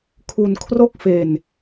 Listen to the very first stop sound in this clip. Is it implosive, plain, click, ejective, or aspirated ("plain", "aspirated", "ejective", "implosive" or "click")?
aspirated